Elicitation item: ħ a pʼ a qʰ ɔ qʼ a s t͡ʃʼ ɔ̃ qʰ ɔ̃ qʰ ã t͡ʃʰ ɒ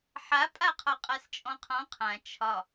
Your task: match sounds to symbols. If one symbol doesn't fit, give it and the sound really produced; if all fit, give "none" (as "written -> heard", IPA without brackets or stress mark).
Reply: none